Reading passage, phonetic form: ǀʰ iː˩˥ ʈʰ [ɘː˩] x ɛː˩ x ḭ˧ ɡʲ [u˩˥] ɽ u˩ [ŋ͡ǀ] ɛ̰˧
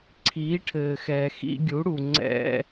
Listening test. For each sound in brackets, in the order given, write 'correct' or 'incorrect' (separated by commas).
correct, correct, correct